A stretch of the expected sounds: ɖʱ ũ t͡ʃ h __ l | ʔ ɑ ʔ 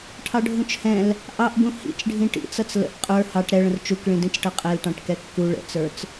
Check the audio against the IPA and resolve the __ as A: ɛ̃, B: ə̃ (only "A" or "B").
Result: A